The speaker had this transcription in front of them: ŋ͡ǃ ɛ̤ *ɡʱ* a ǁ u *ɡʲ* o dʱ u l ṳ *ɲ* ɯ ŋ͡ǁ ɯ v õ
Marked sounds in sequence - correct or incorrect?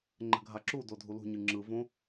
correct, incorrect, correct

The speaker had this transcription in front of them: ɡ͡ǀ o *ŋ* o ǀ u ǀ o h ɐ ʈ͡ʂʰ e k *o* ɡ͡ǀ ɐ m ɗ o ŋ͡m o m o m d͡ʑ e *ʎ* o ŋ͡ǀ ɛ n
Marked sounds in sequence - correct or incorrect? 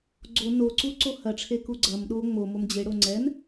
incorrect, incorrect, incorrect

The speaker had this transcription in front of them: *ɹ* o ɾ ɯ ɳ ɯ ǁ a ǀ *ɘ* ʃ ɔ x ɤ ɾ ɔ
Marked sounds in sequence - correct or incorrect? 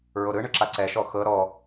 correct, incorrect

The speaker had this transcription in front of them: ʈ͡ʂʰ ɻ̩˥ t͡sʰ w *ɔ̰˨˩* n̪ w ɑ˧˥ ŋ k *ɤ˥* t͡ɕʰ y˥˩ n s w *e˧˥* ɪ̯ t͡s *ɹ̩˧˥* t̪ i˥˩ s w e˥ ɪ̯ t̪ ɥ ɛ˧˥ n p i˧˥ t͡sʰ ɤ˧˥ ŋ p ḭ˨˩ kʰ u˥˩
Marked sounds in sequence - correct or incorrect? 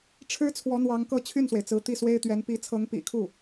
incorrect, incorrect, incorrect, correct

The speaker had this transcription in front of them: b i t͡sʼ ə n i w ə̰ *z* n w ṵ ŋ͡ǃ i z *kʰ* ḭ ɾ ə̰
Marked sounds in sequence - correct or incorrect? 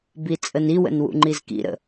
incorrect, incorrect

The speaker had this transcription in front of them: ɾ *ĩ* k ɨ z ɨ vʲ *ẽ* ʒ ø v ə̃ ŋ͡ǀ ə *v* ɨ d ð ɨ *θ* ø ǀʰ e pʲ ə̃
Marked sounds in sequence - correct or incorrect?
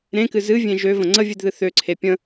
incorrect, correct, incorrect, correct

